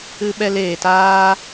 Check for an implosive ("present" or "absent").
present